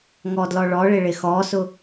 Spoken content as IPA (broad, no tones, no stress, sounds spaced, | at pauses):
ŋ ɔ d l ɔ ɭ ɔ ɭ ɪ ɭ ɪ x ɔ s ʊ